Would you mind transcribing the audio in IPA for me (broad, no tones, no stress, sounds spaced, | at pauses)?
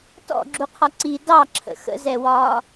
t ɔ̰ ɡ͡ǁ u qʰ ɒ ǀ i d ɑ ǁʰ ə̰ x ə̰ z ɛ w ɒː